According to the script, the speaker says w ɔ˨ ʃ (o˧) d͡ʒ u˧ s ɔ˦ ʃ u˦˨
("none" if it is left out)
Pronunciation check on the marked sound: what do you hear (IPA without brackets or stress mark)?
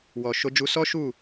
o˧